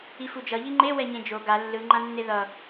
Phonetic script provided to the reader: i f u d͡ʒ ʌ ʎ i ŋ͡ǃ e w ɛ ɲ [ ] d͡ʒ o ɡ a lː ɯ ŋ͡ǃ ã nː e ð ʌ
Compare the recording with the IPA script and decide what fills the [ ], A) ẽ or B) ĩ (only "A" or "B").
A